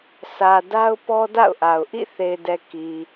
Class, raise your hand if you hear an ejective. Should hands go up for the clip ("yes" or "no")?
no